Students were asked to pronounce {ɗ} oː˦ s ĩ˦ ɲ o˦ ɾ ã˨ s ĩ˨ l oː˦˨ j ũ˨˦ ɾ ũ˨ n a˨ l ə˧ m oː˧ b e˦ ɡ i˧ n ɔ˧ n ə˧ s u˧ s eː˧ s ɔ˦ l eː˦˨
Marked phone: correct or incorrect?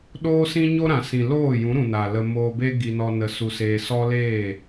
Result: correct